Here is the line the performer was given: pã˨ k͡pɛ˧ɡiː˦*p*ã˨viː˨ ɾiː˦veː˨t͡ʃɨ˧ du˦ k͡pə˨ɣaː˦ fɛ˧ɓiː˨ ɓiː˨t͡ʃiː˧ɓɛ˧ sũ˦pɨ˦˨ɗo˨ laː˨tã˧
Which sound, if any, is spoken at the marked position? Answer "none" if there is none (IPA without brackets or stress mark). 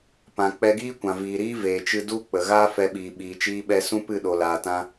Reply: kʷ